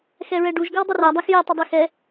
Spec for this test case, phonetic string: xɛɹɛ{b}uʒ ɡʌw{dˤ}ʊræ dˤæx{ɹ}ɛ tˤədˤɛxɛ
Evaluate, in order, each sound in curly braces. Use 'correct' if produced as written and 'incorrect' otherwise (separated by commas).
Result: incorrect, correct, incorrect